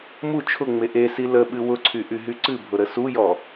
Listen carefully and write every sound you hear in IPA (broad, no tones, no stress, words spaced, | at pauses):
mu t͡ʃʰʊŋ͡me ʔesi ləɓɨ wʊǀʰyʔyɦy ǀɨbʱʊɾə sujɔ